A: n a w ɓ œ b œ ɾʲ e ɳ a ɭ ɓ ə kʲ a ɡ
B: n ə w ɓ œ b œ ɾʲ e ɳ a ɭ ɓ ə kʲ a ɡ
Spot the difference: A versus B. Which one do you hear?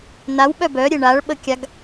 A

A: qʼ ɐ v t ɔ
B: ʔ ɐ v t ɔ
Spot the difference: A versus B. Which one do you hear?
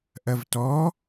B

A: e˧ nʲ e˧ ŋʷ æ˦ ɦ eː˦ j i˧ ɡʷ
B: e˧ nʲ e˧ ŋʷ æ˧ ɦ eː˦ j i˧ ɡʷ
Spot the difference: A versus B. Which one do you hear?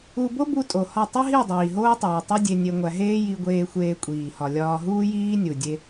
B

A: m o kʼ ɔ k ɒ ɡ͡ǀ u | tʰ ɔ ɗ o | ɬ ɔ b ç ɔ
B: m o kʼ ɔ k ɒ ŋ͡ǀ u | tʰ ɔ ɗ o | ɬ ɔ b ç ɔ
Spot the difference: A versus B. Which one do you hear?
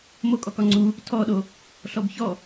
B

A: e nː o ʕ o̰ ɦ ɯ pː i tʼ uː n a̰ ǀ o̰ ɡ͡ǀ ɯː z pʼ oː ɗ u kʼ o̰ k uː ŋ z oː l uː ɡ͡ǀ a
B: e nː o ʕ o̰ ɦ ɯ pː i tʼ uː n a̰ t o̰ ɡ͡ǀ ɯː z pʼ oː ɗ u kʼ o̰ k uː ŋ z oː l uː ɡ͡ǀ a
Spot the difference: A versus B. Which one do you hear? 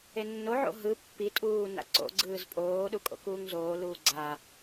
A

